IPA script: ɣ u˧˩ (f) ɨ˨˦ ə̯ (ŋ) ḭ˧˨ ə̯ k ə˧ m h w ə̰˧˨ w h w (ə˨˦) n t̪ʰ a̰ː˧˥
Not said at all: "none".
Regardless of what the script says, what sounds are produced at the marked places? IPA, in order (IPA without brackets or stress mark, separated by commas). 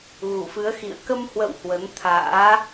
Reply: f, x, ə˨˦